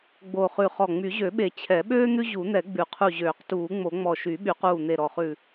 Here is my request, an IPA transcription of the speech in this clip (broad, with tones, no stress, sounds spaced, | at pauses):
ɡ͡b o˧˩ χ ʉ˧˩ χ ɔ˧˩ ŋ͡m y˨˩˦ ʑ ø˨˩˦ ɓ e˨˩˦ t͡ɕʰ ɛ˨˩˦ ɓ øː˥ n̪ ʉ˥ ʑ u˨˩˦ n̪ ɛ˨˩˦ ɡ͡b ʉ˨˩˦ qʰ u˧˩ ʑ øː˨˩˦ q t uː˨˩˦ ŋ͡m o˨˩˦ ŋ͡m ɔ˧˩ ʃ y˨˩˦ ɓ y˨˩˦ q uː˧˩ n̪ e˧˩ ɾ ɔ˧˩ χ ʉ˧˩